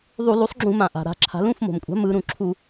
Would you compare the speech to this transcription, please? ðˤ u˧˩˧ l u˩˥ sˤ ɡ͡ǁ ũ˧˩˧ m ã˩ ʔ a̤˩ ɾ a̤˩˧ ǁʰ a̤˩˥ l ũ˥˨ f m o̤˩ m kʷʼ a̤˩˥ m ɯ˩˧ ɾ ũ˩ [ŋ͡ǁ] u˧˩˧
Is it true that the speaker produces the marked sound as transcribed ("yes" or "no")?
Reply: no